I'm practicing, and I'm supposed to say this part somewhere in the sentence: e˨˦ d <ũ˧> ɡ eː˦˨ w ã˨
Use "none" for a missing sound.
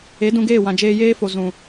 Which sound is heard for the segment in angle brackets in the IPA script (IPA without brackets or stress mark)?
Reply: ũ˧